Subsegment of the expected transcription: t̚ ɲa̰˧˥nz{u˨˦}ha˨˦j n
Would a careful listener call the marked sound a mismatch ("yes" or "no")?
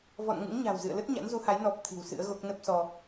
no